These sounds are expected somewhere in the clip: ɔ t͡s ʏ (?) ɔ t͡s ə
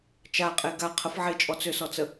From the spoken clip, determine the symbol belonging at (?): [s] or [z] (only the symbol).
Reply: s